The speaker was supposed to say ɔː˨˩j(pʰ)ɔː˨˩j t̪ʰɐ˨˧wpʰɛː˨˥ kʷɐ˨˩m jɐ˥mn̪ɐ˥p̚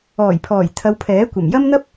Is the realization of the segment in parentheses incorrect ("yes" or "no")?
no